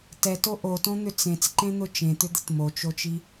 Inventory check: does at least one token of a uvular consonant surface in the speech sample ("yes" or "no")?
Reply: no